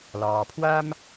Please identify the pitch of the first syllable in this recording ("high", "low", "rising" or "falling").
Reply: low